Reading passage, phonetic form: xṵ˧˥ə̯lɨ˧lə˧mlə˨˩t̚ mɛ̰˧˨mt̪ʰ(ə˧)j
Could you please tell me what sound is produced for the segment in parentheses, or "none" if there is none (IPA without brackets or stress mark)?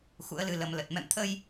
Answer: ə˧